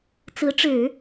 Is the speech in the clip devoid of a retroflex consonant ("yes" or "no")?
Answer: no